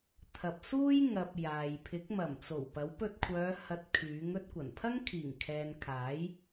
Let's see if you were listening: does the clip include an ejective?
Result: no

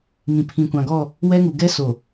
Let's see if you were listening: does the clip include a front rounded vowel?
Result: no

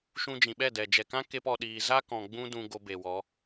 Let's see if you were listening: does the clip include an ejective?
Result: no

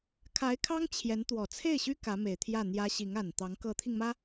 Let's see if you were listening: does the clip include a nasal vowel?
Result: no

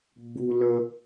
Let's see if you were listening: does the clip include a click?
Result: no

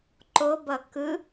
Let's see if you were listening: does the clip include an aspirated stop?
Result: no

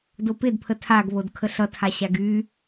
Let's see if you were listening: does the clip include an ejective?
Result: no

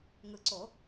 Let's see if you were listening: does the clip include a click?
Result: yes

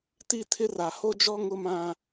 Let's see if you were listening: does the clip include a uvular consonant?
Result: no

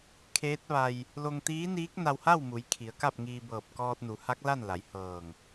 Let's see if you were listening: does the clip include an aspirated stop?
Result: yes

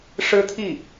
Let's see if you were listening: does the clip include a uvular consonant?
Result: no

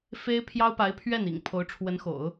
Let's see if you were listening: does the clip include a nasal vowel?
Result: no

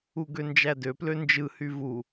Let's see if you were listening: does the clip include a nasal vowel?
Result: no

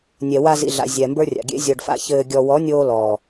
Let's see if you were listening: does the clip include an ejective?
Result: no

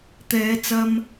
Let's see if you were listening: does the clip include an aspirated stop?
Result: no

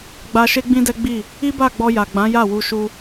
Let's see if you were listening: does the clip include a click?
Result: no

